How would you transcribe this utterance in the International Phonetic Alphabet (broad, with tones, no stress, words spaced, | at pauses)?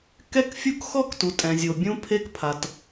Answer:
kɛ˦kfʲu˦k xɔ˦ktu˨ tʼɛ̃˨zʲo˨ bʲũ˦pʰe˦kpʰa˨t